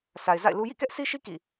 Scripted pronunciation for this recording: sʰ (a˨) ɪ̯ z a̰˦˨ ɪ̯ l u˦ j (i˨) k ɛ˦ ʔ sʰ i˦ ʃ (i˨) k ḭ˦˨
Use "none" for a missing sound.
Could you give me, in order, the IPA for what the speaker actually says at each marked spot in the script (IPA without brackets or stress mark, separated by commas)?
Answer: a˨, ḭ˦˨, i˦